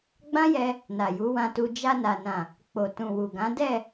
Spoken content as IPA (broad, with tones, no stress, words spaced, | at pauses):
ɡ͡bã˦jɛ˧ | na˨ju˨˦wã˧tu˧ d͡ʒa˧na˨nã˨ | k͡po˨tũ˨wu˨ɡã˨˦ dɛ˦˨